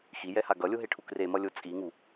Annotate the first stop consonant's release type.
plain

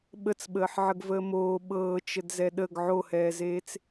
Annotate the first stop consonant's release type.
implosive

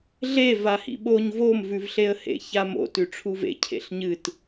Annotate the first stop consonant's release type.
implosive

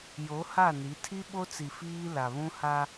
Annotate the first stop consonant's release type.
aspirated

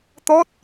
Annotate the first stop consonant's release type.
plain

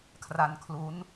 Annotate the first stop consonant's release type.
aspirated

